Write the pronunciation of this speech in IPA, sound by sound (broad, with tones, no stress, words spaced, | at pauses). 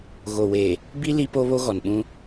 ɣo˨weː˨ | bi˦ li˦po˦βo˦ ɣɔ˨nɓũ˦